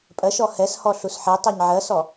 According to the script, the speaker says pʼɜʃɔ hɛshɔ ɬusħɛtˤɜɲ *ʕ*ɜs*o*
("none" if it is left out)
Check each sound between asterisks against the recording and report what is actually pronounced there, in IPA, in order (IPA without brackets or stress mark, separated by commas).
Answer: ʕ, ɔ